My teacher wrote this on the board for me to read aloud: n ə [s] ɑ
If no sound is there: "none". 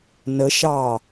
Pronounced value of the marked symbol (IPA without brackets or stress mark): ʃ